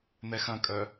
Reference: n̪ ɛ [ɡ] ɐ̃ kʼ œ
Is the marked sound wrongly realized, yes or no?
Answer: yes